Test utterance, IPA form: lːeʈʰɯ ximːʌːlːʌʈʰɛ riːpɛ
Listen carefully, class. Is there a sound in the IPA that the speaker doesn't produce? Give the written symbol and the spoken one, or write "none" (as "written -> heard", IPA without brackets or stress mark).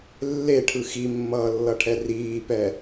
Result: none